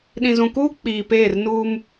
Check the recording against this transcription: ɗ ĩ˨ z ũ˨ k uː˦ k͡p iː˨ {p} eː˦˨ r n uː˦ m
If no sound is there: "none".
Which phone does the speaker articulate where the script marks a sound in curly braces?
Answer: p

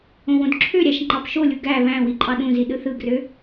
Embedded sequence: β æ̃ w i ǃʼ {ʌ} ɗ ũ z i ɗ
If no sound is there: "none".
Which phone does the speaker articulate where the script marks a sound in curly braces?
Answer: ɑ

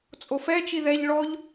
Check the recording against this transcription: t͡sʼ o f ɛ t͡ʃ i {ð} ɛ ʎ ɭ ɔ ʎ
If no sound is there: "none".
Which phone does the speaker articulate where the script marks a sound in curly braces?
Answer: ð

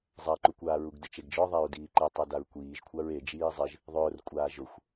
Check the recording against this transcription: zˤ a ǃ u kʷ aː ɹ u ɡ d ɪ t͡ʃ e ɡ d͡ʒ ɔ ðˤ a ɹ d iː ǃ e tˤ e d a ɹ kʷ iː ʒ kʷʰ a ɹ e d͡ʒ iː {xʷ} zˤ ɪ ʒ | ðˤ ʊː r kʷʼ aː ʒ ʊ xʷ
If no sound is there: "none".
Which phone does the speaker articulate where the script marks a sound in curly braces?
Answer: none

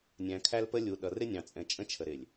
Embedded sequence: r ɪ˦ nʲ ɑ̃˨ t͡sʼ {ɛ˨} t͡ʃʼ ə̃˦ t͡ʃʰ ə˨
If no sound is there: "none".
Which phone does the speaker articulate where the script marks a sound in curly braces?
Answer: ɛ̃˨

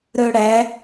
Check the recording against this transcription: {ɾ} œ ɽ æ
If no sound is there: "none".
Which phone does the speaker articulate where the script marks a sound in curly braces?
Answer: ɾ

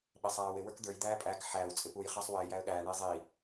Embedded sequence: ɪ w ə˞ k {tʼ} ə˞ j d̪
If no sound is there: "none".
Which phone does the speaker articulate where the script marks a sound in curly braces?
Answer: d̪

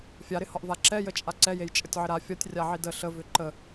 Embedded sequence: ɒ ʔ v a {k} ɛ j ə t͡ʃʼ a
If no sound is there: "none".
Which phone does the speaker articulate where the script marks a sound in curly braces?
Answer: ǁ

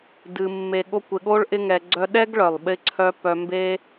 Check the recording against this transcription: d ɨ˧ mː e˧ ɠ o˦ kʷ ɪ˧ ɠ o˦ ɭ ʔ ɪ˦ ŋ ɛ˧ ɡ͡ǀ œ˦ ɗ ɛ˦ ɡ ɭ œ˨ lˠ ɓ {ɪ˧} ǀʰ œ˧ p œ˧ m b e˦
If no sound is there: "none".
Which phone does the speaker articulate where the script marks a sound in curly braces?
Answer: ɪ˧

